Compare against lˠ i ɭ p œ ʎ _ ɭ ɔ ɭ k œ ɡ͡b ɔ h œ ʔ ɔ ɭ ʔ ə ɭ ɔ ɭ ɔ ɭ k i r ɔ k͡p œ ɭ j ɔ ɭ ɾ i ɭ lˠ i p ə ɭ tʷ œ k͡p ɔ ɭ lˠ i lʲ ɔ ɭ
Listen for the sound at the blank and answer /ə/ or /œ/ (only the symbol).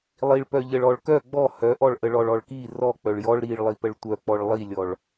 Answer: ə